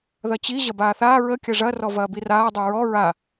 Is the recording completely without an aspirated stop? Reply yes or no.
yes